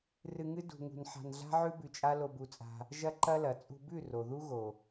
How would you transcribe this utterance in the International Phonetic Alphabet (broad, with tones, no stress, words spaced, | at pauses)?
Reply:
rɨ˧ŋɨ˦ dṳ˧ŋṳ˧n ħa̤˧nɮa̤˦ʕʉ˦ bʉ˧t͡ʃʼa˦ lo˧bu˧t͡sʼa̤˧ | ʒɐ˦ǃɐ˦lɐ˨ t͡sʼṳ˧bʉ˦˨ ro˨ðu˦ ɣo˨